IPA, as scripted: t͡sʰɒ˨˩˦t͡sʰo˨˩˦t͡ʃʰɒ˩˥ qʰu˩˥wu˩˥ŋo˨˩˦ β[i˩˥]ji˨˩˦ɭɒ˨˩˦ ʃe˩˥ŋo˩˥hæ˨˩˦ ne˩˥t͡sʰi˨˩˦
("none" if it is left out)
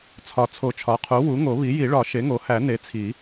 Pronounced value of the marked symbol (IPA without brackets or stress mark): i˩˥